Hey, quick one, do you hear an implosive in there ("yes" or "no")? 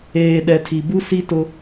yes